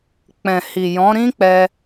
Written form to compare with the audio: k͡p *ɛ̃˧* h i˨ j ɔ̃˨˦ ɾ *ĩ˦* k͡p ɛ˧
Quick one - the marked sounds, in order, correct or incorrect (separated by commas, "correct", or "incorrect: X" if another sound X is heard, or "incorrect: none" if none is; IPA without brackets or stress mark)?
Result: incorrect: ɛ̃˨, correct